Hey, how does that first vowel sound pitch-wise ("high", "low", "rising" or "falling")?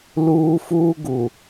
high